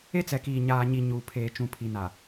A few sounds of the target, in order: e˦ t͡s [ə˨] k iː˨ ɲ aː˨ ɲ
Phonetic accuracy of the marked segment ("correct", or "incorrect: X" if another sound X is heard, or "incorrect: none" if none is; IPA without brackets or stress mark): incorrect: ɛ˨